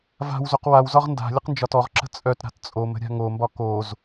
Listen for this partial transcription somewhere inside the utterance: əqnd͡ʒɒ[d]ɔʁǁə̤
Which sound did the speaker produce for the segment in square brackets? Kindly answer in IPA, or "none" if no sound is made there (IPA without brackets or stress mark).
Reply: t